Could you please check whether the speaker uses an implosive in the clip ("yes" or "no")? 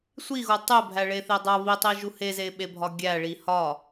yes